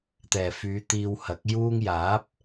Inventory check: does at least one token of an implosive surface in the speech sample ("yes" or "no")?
no